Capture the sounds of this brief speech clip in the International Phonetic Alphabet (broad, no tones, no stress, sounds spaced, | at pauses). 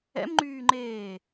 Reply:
ɛ̰ m ŋ͡ǃ yː ŋ͡ǃ eː